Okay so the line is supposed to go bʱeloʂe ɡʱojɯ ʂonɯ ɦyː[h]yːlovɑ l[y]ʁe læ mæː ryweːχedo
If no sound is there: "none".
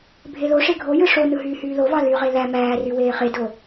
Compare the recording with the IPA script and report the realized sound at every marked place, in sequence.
h, y

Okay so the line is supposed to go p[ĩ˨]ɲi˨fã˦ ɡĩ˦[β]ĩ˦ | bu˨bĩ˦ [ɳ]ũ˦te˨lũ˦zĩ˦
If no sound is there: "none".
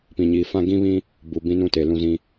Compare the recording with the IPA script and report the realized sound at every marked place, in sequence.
ĩ˨, β, n

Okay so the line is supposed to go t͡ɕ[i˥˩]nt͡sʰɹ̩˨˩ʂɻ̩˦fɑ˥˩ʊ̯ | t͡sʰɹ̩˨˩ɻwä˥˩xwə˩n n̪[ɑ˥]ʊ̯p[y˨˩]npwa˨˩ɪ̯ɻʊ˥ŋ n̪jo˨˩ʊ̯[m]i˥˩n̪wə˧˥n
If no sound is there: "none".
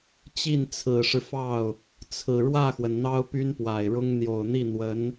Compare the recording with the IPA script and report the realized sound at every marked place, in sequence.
i˥˩, ɑ˥, y˥, n̪

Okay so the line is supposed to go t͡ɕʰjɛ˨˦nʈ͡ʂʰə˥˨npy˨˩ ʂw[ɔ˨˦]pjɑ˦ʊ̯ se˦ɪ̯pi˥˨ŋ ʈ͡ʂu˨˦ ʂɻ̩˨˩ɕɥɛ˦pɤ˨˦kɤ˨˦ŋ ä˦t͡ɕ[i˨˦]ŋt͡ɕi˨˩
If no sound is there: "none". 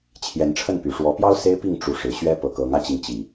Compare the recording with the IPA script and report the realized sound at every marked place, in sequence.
ɔ˨˦, i˨

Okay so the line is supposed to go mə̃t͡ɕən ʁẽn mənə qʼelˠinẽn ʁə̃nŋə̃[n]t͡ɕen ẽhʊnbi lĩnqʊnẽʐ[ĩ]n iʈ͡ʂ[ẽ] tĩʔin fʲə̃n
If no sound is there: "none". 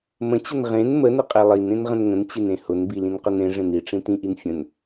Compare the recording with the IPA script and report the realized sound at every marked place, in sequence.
n, ẽ, ĩ

